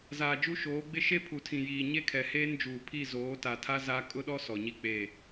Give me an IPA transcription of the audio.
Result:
z aː˨ d͡ʒ u˦ ʃ oː˨˦ ɡ͡b ɪ˦ ʃ e˦ pʰ u˨ tʰ ĩ˨ j iː˨ ɲ e˦ kʰ ɛ˨ h eː˦ n d͡ʒ uː˨ pʰ i˦˨ z oː˨˦ t a˨ tʰ a˦ z a˦ kʼ ʊ˦ ɗ ɔ˦ s ɔ˨ ɲ i˦ k͡p e˦˨

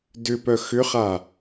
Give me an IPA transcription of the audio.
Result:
d ʏ p œ x ʏ χ a

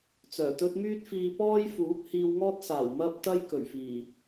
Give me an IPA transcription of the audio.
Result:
t͡s œː˨˩ t̪ ɵ˥ t̚ m yː˥ t̚ f iː˧ p ɔː˥ j f uː˨˥ p̚ h iː˧ w ŋ ɔː˥ t̚ s aː˨˩ w m ɐ˥ p̚ t̪ ɐ˥ j k ɵ˨˩ ɥ f iː˨˩

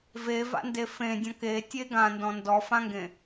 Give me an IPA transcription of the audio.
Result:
v e v a̰ n d e f ẽ dʲ ɔ̃ k e tʲ e ɡ ã n d ɔ̃ n d ɔ f ã ŋ ɡ ẽ

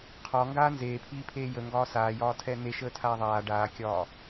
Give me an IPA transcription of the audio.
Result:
qʰ ɒ ŋ ɡ aː n z eː pʰ iː pʰ eː j ə ŋ ɡ ɒː s aː j ɒː tʰ ɛ n e ʃ əː tʰ aː ðˤ aː ɖ aː kʲ ɒː

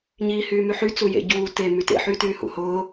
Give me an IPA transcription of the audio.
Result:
ɲ iː h yː m y ħ y t͡s u j ḛ ɟ uː t e m y t ḛ ħ yː t yː h ṵ h ʊː

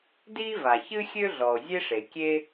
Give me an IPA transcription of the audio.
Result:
d iː˥ v a˩ ç ɨ˥ xʲ ø˥ ɮ ɔ˩ o̯ zʲ e˥ ʂ e˩ kʲ e˥

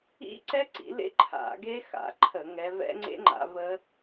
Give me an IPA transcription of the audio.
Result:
ḭ˦˥ ǀ ɛ˦˥ ǀ ḭ˨˦ l ḛ˦˥ ǃʰ a̰˧˩˧ ɡ e˦˥ x a̰˨˦ ǃʰ ə˧˩˧ ŋ ɛ˨˦ v ɛ̰˦˥ ŋ͡ǀ ḛ˦˥ ŋ͡ǃ a̰˨˦ v ə˦˥

